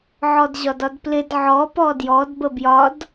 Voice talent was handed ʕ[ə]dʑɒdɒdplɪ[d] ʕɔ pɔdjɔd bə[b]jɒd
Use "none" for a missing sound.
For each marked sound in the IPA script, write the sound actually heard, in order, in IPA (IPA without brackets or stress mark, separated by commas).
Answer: ɔ, d, b